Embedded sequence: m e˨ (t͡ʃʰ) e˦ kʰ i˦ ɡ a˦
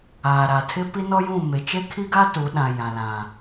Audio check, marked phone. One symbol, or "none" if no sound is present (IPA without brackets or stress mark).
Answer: t͡ʃ